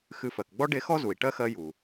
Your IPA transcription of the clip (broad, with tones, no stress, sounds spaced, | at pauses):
x ɨ˨ f ɜ˩ k ɡ͡b ɔ˦ ɖ e˦ x ɔ˥ z u˩ i̯ ʈ ɜ˥ x ɜ˦ j u˩